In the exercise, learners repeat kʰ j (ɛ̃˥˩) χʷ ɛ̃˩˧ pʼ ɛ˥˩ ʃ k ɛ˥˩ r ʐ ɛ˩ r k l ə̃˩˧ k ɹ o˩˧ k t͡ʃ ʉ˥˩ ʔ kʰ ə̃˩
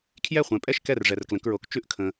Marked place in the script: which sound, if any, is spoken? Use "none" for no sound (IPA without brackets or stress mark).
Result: ɛ˥˩